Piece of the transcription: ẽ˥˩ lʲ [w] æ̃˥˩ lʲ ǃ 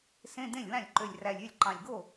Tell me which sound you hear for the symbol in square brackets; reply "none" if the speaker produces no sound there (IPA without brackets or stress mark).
w